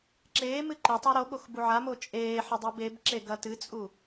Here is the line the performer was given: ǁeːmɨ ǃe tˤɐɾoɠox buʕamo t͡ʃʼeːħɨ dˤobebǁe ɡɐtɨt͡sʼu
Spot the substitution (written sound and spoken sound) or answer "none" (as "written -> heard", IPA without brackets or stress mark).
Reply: none